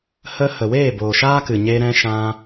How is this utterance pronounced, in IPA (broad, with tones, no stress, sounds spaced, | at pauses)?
h ə˧ h ə˨ w eː˦˨ b o˨ ʃ aː˦ k ɨ˨ ɲ e˧ ɾ ɛ̃˧ ʃ ã˧